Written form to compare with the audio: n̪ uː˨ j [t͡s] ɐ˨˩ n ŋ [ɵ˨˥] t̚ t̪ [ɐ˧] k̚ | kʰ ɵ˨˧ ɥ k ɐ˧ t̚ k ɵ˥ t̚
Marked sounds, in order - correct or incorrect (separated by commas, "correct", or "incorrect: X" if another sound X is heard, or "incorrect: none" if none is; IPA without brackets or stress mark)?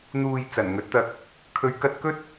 correct, correct, correct